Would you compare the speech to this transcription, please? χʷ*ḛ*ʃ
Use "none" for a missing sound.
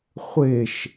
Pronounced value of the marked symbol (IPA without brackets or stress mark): e